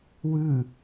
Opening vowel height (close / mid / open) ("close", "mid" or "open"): close